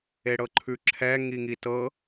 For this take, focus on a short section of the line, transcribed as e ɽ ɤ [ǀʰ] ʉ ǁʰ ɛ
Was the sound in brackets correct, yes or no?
no